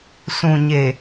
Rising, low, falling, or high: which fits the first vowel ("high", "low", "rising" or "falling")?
low